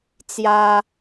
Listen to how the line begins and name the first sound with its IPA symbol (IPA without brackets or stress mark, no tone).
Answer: t͡s